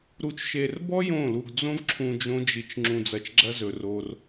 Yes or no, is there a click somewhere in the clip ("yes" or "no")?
yes